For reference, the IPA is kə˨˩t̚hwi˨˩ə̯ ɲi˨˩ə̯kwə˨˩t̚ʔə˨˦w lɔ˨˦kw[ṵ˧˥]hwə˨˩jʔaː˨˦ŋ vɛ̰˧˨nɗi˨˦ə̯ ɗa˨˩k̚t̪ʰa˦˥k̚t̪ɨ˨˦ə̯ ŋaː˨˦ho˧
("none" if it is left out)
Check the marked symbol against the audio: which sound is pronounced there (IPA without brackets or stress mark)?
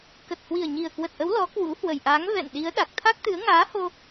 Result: ṵ˧˥